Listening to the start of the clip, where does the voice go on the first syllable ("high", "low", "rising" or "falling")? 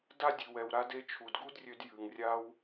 high